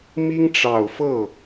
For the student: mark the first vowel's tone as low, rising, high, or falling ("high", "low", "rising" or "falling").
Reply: high